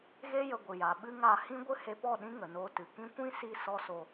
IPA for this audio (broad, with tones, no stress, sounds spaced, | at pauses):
ɣ e˦ j ə˧ ɡʷ ɨ˨ j a˨ ɓ ɨ˦ ŋ a˦˨ h ĩ˦ ɡʷ ɨ˦ h e˧ p ɔ˦˨ ɗ ĩ˦ ŋ ə˨ n oː˧ t ɨ˨ k ĩ˧ kʷ ĩ˦ s i˧ s ɔ˦ s o˧